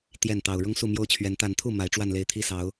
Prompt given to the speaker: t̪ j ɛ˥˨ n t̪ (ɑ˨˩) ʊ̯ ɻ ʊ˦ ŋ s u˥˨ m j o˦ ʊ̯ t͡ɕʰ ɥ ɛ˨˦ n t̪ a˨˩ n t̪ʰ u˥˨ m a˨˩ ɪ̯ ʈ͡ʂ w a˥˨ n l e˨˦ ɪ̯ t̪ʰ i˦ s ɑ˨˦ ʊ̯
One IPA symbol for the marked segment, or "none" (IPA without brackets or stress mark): ɑ˨˩